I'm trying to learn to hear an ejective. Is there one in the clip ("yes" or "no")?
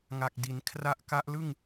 no